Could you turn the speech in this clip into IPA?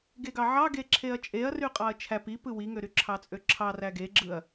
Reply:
ɡ e ɡ ɑ ʕ ɑ ɡ e ǁʰ e ɐ̯ t͡ʃʼ e ɐ̯ r y qʼ ɑ ɐ̯ t͡ʃʰ æ p i p ɯ w i ŋ ø ɾ y ǁʰ ɑ t͡sʼ ø ǁʰ ɑ r æ ɡ e ɡ͡ǁ ɯ ɐ̯

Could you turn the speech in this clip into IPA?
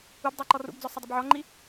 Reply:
u b dˤ ɛ ǃ ɔ r ṵ b d͡z ɔ sˤ ʌ dˤ ʊ b ʕ ɔ ŋ͡ǃ i

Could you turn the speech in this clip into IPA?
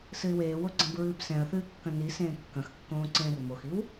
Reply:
s ɨ ɪ̯ w eː w o ɡ͡ǀ ɐ̃ b ɹ ɨː b s ɛ̃ ə̯ θ ɨː kː ɐ̃ n i s ẽː kː ɐ̃ x kː õː ǀ ẽː r m o x i w

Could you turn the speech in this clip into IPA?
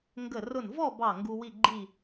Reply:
ŋ ɡ ə˧˩ r ʊ˧˩ n v ɔ˥˨ b ɑ˧˩ ŋ ɡ u˦ w i˥˨ ɡ͡ǃ i˥˨

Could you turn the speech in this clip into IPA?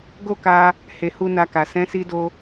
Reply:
ɡ o˦ k a˧ | h e˨ h u˧ n a˧ k a˨ s ɛ̃˨˦ s i˧ d o˧

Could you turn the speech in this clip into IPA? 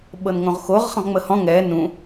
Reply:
ɓ ɤ n ŋ õ ʁ x o ʁ χ ə̃ ʁ ŋ͡m ə h ɔ̃ ŋ ɛ n ũ

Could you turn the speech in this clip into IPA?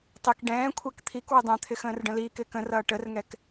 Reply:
tˤ i k ɖ ɛ̃ː kʷʰ æ k t̪ʰ i k w ɪ dˤ ɛ̃ t̪ʰ ɪ x ə̃ː r ɖ ə̃ l iː k ɪː k ə̃ r ʌː ʈ ə r ŋ ɛ k

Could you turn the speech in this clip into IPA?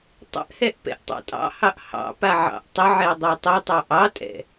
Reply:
tˤ ə̰ ʔ h ɛ ʔ p ɛ̰ ʔ tˤ ɑ̰ tʼ ɑ̰ h ɑ ʔ h ɑ̰ p a ʕ ɑ̰ ʔ tˤ ə ʕ ɛ dˤ a tˤ ə tˤ ɑ ʔ ɑ tʼ ɛ̰

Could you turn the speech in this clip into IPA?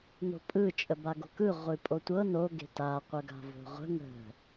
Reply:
n o̤ pʼ ɯ t͡ʃʼ ə b a ɡ o̤ k ɯ ʁʷ ɨ pʼ o tʷ ɤ n o ɡ e̤ t a qʷ ə ɡ a̤ v o̤ ʁʷ ə̤ ŋ ə̤

